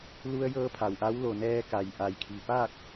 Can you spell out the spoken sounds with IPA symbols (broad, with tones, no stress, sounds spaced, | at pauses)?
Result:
l u˧ ə̯ j ɤː˧ pʰ a˩ w ʔ a˧˥ w l o˩ n ɛː˧ k a˩ j ʔ a˩ j kʰ i˩ p aː˥˨ k̚